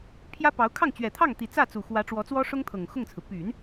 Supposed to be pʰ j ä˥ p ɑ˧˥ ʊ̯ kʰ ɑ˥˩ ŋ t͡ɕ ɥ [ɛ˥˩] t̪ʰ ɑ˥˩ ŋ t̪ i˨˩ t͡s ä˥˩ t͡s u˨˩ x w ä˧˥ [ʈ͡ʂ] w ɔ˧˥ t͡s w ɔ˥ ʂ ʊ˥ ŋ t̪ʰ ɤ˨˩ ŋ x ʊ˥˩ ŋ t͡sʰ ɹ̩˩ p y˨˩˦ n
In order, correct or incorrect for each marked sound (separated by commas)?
incorrect, correct